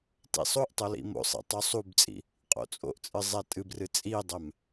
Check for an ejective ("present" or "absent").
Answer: present